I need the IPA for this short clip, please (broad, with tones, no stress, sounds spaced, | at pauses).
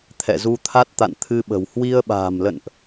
t̪ʰ ɛ̰˧˨ z u˧ t̪ʰ a˦˥ t̚ t̪ a̰˧˨ n t̪ʰ ɨ˧ ɓ ə̤˨˩ w h w i˧ ə̯ ɓ a̤ː˨˩ m l ə̰˧˨ n ʔ